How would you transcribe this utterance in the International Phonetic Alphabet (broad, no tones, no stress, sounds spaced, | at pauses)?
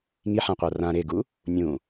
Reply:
ŋ i ħ ã qʷ a r ã ɾ e ɡ u | nʲ ũ